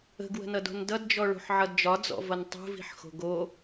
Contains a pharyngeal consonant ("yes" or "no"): yes